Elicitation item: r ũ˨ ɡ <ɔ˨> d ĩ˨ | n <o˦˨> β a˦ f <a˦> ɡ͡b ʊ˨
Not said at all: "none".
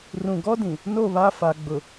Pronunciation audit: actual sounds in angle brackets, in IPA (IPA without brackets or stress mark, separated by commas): ɔ˦, o˦˨, a˨